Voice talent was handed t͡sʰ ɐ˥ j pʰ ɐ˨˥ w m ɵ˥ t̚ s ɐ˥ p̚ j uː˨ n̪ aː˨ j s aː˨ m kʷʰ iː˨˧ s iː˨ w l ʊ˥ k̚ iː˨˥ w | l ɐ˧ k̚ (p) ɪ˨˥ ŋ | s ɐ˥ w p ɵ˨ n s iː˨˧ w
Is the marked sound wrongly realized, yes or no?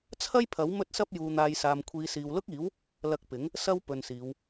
no